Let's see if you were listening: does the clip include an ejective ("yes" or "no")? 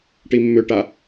no